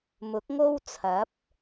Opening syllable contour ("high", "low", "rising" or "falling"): rising